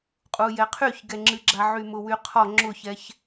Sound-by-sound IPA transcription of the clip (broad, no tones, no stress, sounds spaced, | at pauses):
qʼ u j ɛ qʰ y ç ɡ ɛ ŋ͡ǁ ɨ ɡ͡ǁ a ʕ y m ʊ w y qʰ ɔ ŋ͡ǁ ʊ ç ɛ ç